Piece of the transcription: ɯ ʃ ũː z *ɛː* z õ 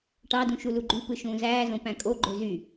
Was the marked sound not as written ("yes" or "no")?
yes